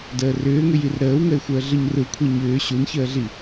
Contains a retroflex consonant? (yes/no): no